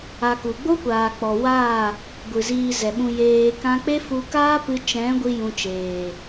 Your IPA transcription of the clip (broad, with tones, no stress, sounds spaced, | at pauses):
a˧ k u˨ ɡ͡b o˦ kʷ aː˨ k͡p ɔ˨ w aː˦˨ | ɡʷ ɨ˨ z iː˧ z ɛ˨ ɓ ũ˧ j eː˧ k ã˦ k͡p e˦ f u˧ k aː˦ p ɨ˧ t͡ʃ ɛ̃˨˦ ɡʷ i˦ j ũ˧ t͡ʃ eː˨